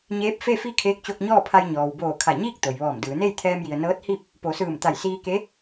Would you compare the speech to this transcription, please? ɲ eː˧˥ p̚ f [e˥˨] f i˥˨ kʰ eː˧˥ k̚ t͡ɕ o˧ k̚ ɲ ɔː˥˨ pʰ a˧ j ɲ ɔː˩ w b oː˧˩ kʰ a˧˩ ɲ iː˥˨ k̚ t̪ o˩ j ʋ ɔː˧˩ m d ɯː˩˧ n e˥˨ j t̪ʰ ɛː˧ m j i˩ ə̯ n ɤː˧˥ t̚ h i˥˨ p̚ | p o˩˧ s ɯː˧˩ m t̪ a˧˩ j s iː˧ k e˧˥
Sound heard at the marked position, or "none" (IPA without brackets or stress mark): e˥˨